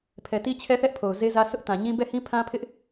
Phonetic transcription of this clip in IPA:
pʰ ɛ˨ t i˦ t͡ɕʰ ɛ˦ θ ɛ˦ ʔ pʰ o˨ ʊ̯ z e˦ z ä˦ s ʊ˦ ʔ t ã˨ ɲ ĩ˦ b ɛ˦˨ h ĩ˦ pʰ ã˦ pʰ ɪ˦ ʔ

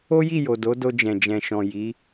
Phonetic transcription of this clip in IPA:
o˦ j i˦˨ j o˨ d o˨˦ d o˧ d͡ʒ ɛ̃˨ d͡ʒ ɛ̃˨ ʃ ɔ̃˨ j i˨˦

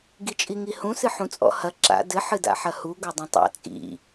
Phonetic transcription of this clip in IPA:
ɡ i t͡ʃʼ i ŋ i h ũ s ɨ ħ ũ t͡sʼ ɔ̰ h ɐ ǁ a̰ d ɘ ħ ɨ d a̰ ħ ɐ h u ɡ o dˤ ĩ tˤ a̰ t͡sʼ ḭ

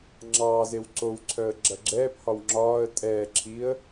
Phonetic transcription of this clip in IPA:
ŋ͡ǁ ɑː z e w ǀ o w ǀʰ œ ə̯ ɡ͡ǁ ɐ ɡ͡ǁ ɛː p h ɒ w ŋ͡ǁ ɒː ə̯ tʼ ɛː ǁʰ i ə̯

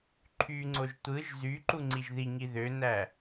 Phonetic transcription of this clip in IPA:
ǃʰ y ŋ͡ǀ o ʒ tʷ ɯ ʒ z y ǃ u ŋ͡ǀ i ʒ ð i ŋ i ð ø n æ

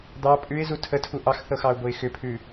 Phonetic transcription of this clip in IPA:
d̪ ɑ pʼ ʉ ɪ̯ z u tʰ ə tʰ u ʔ ɑ x θ ɤ x ɑ ʊ̯ b o ɪ̯ x ʏ pʰ ʉ

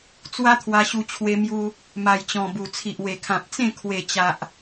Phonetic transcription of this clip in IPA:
t͡s w a˦ t̪ʰ w a˧ ɕ u˧ t͡ɕʰ w e˧ m j u˧ | m a˨˩ j t͡ɕ ɔ̃˨˩ b u˨˩ t͡sʰ i˨ ʔ w e˨˩ kʰ ã˨ p̚ t͡s ẽ˥˧ kʰ w e˨˩ t͡ɕ a˨ ʔ

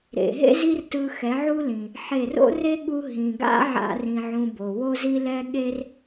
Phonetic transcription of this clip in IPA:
ɾ ḛ˨ ɦ ḛ˦ z i˦ r t ɯ˧ x ɛ˨˦ ʕ u˦ l ĩ˨ | ħ e˦˨ r o̰˦ r e˦ ɠ u˦ ɦ ĩ˨ ɡ a̰˦ ʕ a̰˦ r ĩ˧ ʕ ũ˧ b o˨ w o˦ z i˦ l ɛ˦ ɠ e˦ r

